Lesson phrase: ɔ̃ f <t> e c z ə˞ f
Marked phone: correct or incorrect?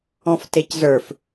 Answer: correct